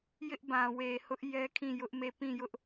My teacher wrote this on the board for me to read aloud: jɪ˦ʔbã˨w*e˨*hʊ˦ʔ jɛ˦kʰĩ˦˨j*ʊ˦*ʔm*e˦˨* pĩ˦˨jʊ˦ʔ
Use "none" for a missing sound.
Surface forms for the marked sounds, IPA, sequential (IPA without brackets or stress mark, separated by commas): e˨, ʊ˦, e˦˨